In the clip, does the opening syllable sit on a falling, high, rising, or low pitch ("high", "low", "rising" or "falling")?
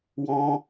high